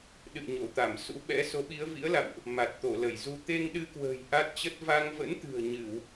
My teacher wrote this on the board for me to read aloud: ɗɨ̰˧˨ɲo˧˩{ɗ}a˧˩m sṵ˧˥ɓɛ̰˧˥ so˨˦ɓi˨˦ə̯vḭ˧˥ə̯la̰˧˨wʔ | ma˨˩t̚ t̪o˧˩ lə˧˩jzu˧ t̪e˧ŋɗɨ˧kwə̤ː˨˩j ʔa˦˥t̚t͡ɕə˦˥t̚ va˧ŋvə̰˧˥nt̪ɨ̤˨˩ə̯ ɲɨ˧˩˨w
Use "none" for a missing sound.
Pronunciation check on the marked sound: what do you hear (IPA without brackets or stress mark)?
t̪